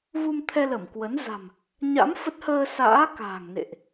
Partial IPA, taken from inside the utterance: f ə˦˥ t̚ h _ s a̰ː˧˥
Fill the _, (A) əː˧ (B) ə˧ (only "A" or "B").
A